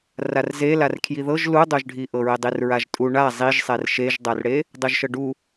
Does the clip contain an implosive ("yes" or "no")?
no